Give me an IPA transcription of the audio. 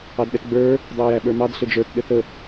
ɑ d ɗ ɛ t ɡ͡b ə˞ | dˤ ɛ ə̯ j æ ɓ ə˞ m ɑ d ɬ ɘ d͡ʒ ə˞ t ɗ ɘ θ ə

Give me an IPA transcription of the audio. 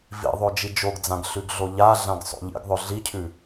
v ḭ ðˤ o d͡ʒ i d͡ʒ o ɡ d͡z ã ɡ ɬ ʉ ɡ ɮ o ʎ a ɮ ã ɡ sˤ o̰ ʎ ḭ ɡ ðˤ ɵ ɮ i cʰ ʉ

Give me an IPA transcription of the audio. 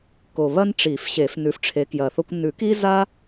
k o˨˩ β ɐ˦ n ʈ͡ʂ i˨˩˦ f ɕ e˨˩˦ f n ʉ˨˦ f ʈ͡ʂʰ e˨˦ k j ɐ˨˩ θ o˦ kʷ n ʉ˨˩˦ k i˦ z a˦

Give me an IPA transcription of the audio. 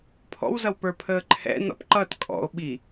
pʰ ɔ̰ w z ʌ w p ə˞ pʰ əː ǃʰ ɛ̰ n ɔ̰ p ǃ ʌ t kʼ ɔ̰ o̯ ɓ i

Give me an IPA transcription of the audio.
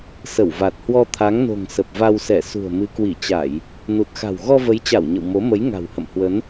s ə˧˩ w v a˨˩ t̚ h w ɔ˧ t̪ʰ a˨˦ ŋ n o̤˨˩ ŋ s ə˨˩ p̚ v a˧ w s ɛ˧˩ s ṳ˨˩ ə̯ m ɨ˨˦ k w i˧˩ t͡ɕ a˧˩˨ j | n u˨˩ t̚ x a̤˨˩ w ɣ ɔ˧ v ə˨˦ j t͡ɕ a˧˩ w ɲ ə̰˧˨ w m o˨˦ m ə˨˦ j ŋ a̤˨˩ w h ə̰˧˨ m h w ə˨˦ n

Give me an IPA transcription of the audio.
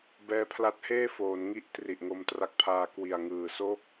b ɛː˦˥ pʰ l a˦˥ t̚ h eː˥˩ f oː˩˦ n ŋ i˥˩ ʔ t r i˨˩ ʔ ŋ o˧ m t r a˦˥ k̚ pʰ aː˧ k w i˨˩ a̯ ŋ ɯː˨˩ s oː˥˩ k̚

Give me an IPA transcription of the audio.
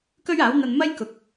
k ɵ˥ ɥ aː˨˥ w n̪ ɐ˧ n m ɐ˥ j k ʊ˨ k̚

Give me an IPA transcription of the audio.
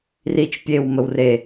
r i t͡ʃ pʲ e w m ə w r e

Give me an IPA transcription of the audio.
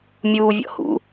mʲ uː vʲ ɔ̰ h ṵ

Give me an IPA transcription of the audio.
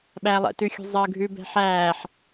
ɓ æ lˠ ɛ̰ t ʉ xʲ ṳ zˤ əː ɡʱ ʉ b ɛ̤ ħ æː ħ

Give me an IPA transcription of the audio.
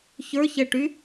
ç ə˞ ç ɛ ʈ y

